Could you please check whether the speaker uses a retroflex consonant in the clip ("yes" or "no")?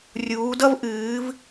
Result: no